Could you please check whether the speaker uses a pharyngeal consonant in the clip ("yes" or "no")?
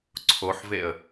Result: yes